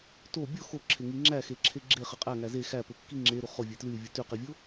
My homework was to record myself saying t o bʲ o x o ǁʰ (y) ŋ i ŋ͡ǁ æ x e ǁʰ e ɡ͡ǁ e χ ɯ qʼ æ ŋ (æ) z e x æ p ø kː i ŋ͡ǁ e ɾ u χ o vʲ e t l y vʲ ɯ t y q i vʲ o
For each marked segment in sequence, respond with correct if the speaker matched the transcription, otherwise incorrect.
incorrect: e, correct

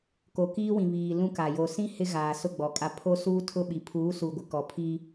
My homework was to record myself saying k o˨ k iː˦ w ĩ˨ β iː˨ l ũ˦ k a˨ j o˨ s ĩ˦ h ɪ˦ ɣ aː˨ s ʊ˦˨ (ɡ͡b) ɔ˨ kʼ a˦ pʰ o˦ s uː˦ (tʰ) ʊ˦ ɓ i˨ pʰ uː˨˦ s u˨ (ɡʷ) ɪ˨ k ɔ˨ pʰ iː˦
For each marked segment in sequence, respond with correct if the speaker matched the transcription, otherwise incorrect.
correct, correct, correct

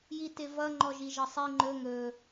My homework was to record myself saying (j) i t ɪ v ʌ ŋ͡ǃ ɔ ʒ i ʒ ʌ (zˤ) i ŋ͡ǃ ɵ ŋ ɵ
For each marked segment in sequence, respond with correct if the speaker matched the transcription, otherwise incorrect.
correct, incorrect: sˤ

